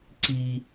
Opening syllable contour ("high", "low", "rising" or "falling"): high